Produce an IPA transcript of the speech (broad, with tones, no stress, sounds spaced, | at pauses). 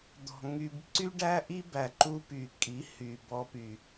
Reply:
d̪ ɔ̤˨ ŋ y˨ b ǀ y˦ ɖ æ˦ ʔ i˦ b æ˨ ǃ u˦ p y˨ kʼ i˨˦ h y˨ b ɔ˧ p y˨